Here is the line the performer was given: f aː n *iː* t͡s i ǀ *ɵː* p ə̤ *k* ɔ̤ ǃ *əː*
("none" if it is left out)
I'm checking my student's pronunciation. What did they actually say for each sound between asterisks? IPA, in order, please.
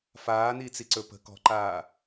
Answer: iː, ɵ, k, aː

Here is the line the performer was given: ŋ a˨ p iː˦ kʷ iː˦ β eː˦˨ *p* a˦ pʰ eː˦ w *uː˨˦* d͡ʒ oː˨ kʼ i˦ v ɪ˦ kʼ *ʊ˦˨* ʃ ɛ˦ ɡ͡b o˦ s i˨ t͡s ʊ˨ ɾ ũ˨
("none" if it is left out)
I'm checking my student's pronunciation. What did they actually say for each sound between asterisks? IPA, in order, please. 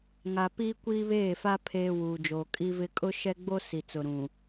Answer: f, uː˨, ʊ˦

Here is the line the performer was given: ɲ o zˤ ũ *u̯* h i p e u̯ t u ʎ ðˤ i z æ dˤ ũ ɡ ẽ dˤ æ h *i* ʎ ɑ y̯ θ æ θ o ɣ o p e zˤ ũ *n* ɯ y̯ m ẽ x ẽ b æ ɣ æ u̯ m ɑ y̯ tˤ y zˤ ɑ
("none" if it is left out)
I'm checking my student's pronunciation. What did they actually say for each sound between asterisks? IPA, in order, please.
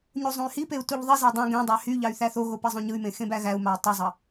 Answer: y̯, y, ɲ

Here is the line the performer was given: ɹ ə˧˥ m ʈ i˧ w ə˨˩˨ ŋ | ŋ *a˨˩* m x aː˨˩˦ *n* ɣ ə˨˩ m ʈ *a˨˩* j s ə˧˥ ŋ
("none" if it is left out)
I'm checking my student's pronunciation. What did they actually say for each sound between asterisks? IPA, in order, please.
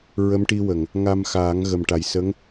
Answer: a˧, ŋ, a˨˩

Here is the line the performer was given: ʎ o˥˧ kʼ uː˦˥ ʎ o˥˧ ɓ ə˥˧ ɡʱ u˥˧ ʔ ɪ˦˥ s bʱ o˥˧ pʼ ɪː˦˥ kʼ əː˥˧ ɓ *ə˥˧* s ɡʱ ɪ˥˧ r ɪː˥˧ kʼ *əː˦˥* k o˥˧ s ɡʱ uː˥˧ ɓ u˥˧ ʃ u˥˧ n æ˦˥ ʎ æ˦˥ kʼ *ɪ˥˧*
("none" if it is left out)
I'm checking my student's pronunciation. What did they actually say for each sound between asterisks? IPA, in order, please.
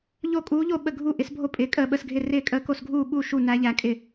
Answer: ə˥˧, əː˦˥, ɪ˥˧

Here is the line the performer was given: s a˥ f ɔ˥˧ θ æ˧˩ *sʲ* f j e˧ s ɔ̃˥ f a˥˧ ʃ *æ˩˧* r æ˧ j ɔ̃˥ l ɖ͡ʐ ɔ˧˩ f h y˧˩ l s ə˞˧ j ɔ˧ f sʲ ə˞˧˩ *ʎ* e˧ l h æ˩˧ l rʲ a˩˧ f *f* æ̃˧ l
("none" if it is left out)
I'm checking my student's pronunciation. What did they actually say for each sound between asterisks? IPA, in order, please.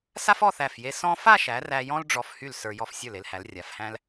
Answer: none, æ˩˧, l, h

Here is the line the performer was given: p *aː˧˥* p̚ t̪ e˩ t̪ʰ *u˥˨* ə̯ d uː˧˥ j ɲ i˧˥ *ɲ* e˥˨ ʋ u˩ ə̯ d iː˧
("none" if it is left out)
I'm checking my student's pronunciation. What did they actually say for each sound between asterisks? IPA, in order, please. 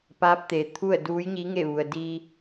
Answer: aː˧˥, u˥˨, ŋ

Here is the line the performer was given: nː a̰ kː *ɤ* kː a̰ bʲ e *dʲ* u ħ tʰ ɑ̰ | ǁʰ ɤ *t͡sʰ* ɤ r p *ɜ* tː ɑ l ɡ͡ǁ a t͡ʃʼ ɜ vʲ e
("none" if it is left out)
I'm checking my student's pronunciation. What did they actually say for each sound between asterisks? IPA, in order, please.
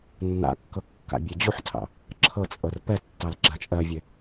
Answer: ɤ, d͡ʑ, t͡sʼ, ɛ

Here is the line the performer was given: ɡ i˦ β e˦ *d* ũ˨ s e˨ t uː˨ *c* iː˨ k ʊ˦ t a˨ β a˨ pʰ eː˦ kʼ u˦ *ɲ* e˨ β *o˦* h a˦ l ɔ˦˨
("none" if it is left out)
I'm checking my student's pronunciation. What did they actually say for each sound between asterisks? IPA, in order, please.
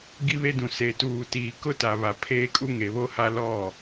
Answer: d, t, ŋ, o˦

